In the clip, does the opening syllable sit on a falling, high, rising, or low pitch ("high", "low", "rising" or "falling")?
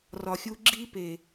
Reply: low